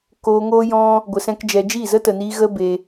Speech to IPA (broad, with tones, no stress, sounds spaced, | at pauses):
k oː˧ ŋ oː˦ j ɔ̃˦ | ɡʷ ə˧ s ɛ̃˦ k d͡ʒ ɛ˧ d͡ʒ i˦˨ z ə˦ t ə˨ n iː˧ ɣ ə˦ b e˧